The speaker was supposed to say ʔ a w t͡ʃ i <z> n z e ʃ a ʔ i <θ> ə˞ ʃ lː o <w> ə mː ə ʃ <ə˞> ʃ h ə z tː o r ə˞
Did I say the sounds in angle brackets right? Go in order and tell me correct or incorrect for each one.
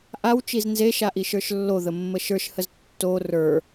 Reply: correct, incorrect, incorrect, correct

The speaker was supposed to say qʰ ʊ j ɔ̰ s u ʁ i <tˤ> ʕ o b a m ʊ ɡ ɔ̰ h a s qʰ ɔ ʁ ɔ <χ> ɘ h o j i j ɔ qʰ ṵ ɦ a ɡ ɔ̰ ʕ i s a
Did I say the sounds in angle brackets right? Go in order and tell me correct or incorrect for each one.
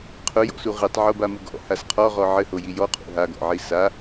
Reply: correct, incorrect

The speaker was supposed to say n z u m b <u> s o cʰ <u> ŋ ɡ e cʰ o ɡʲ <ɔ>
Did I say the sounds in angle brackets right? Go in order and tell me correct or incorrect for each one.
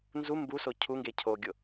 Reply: correct, correct, incorrect

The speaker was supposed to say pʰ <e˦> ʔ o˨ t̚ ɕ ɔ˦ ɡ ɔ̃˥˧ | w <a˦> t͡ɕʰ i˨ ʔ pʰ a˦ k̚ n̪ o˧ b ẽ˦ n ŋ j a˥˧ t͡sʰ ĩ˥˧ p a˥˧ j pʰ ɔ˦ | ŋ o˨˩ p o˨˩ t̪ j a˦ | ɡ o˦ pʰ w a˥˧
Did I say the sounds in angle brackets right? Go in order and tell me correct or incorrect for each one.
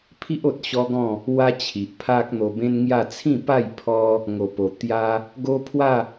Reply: incorrect, correct

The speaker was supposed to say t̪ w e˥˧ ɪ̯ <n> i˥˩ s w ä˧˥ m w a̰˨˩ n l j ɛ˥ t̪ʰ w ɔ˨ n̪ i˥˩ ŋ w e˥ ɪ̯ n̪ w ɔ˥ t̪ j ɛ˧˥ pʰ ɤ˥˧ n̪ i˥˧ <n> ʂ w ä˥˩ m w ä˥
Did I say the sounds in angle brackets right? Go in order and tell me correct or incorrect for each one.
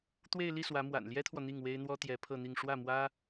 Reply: incorrect, incorrect

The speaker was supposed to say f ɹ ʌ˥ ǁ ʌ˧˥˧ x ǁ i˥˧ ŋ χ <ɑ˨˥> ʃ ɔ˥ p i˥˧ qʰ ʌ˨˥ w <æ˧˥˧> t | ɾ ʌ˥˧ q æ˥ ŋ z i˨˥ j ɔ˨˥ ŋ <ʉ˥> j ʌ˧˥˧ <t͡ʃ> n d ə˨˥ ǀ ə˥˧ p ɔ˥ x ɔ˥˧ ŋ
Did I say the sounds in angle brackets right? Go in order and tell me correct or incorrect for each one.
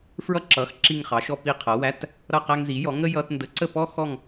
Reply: correct, correct, incorrect, incorrect

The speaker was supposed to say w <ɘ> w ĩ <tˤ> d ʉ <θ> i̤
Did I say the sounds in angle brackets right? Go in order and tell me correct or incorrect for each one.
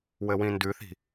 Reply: correct, incorrect, correct

